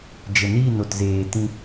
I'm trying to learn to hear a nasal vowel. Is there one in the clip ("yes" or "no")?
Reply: yes